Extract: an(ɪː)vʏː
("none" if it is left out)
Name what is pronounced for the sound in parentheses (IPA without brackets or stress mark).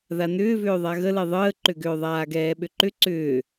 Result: ʏː